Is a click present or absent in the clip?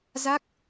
absent